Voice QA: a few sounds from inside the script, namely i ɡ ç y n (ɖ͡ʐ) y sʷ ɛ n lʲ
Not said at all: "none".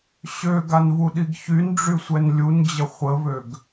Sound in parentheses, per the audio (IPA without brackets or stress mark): ɖ͡ʐ